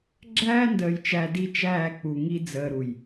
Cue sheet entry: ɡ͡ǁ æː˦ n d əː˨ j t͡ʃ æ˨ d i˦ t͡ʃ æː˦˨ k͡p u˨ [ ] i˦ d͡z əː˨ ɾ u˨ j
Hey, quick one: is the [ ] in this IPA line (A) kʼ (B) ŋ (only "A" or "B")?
B